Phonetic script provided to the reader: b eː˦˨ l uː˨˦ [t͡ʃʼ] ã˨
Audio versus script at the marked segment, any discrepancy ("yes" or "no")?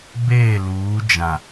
yes